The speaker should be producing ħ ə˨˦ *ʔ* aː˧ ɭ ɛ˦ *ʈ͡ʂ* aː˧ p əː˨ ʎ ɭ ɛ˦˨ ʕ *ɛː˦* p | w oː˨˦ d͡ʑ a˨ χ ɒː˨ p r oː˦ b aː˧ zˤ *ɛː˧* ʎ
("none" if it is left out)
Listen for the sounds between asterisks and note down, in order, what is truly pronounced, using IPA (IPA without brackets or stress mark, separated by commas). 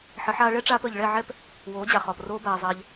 ħ, ʈ͡ʂ, ɛ˦, ɛː˧